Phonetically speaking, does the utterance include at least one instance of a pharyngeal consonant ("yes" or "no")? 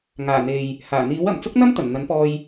no